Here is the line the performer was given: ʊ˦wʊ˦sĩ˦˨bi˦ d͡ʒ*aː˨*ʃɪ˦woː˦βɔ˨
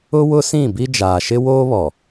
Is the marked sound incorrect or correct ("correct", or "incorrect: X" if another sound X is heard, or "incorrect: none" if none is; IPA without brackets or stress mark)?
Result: correct